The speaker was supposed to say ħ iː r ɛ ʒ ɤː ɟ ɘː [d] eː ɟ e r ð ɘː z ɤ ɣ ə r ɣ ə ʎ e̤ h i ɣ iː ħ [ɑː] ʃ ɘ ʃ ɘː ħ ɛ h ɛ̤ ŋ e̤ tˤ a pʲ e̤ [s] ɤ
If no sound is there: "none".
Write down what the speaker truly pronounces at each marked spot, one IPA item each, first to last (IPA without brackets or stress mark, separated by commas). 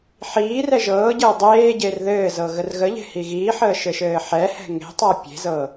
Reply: dˤ, əː, z